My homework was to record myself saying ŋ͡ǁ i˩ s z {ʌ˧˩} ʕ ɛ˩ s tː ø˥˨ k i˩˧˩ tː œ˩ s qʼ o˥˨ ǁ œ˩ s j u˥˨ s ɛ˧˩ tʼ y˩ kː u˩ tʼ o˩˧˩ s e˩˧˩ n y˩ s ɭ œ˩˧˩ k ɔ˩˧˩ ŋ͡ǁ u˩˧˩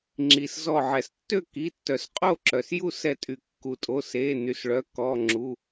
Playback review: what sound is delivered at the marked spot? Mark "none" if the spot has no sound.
ɔ˧˩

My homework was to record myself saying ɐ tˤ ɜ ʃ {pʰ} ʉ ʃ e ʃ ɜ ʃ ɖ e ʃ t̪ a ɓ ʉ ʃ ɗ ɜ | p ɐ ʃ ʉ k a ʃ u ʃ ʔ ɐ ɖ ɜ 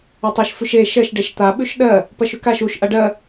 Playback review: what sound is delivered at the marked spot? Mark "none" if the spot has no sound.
f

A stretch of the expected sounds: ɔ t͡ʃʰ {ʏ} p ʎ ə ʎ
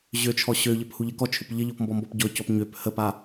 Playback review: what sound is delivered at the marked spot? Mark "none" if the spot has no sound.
ʏ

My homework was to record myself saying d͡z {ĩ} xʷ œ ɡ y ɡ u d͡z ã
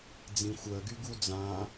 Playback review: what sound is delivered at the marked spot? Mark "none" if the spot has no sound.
ĩ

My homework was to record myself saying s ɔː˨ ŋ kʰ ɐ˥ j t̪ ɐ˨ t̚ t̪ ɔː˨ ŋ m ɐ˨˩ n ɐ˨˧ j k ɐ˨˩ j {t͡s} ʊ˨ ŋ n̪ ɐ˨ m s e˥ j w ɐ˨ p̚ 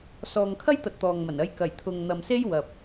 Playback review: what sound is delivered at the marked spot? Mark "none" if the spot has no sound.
t̪ʰ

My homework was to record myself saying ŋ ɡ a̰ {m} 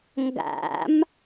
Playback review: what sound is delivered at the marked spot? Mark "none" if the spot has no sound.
m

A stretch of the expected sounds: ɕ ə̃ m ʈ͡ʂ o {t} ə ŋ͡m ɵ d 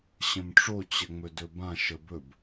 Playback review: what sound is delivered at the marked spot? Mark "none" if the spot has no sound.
t͡ɕ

